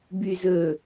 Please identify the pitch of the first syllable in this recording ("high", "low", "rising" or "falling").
low